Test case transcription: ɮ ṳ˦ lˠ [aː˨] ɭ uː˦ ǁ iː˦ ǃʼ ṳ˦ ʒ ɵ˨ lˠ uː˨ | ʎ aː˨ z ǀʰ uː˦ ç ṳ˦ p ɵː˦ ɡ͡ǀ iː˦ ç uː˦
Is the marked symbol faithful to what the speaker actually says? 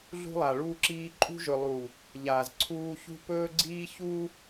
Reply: no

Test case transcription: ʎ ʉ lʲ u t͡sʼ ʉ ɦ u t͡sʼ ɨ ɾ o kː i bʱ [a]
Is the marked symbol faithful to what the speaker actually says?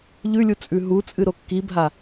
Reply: yes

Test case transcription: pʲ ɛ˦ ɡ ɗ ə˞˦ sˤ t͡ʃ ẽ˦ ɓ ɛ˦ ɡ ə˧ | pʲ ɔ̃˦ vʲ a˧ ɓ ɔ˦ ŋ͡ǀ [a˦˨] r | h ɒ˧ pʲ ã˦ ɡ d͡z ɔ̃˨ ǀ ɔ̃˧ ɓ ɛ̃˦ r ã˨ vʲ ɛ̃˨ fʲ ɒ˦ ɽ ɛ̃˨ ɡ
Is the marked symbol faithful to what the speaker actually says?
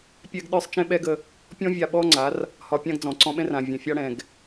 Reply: no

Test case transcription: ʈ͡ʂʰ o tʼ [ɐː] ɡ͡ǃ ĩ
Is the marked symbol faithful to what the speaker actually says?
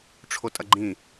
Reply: no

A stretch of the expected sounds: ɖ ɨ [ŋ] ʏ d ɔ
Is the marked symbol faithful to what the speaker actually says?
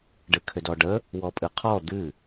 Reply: no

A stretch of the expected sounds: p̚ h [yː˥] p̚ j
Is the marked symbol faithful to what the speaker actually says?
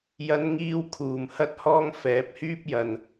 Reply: yes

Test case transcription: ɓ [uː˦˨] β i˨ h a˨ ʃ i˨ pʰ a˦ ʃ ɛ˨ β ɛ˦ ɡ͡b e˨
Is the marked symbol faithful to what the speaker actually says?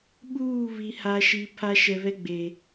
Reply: yes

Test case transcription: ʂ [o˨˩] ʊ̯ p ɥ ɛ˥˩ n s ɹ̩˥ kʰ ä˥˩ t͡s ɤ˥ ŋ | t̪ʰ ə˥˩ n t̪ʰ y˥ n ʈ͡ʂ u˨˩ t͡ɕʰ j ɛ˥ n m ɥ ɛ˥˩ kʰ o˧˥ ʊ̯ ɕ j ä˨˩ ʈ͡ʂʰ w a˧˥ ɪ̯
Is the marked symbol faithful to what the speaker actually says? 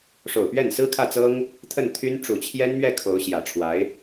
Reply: yes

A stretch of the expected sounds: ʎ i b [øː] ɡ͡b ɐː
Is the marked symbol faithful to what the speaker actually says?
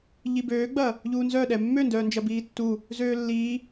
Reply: yes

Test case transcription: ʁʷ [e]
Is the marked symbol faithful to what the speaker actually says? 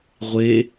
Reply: yes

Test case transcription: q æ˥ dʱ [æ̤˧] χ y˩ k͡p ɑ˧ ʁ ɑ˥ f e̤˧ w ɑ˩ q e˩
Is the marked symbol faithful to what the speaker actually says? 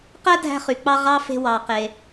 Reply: yes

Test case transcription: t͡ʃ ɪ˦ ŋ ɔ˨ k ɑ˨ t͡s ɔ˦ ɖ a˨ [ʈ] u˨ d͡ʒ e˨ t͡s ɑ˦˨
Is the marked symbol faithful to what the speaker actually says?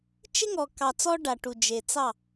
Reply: yes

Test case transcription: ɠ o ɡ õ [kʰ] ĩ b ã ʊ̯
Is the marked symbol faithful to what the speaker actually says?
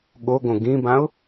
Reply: no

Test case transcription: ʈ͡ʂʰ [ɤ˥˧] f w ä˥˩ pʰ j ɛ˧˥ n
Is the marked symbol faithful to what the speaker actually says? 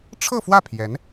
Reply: yes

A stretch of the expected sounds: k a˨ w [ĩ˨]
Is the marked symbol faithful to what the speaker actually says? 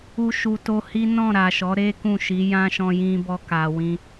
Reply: no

